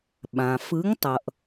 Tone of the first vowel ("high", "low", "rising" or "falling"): low